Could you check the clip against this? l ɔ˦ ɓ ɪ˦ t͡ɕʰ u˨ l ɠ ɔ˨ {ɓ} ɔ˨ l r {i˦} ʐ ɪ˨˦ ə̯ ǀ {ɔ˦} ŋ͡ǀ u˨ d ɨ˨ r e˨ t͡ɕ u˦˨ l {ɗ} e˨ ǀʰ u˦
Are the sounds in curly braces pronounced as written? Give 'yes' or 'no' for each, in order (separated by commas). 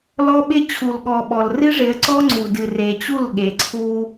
yes, no, yes, no